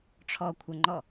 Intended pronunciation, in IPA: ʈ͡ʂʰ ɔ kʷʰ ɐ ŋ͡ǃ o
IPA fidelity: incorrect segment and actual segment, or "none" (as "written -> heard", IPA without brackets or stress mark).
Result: o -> ɔ